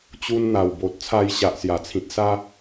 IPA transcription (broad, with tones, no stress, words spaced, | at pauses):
t͡ɕu˧nn̪a˨˩wbo˨t̚ t͡sʰa˧jɕa˨ʔsja˨˩t͡sʰĩ˨t̚ sa˧